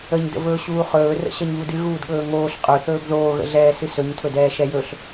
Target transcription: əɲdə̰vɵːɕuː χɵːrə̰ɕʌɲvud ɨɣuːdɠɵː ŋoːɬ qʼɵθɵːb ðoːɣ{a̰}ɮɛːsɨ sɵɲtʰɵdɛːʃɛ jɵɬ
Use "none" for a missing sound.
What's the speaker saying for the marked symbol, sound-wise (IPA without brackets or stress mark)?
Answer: ə̰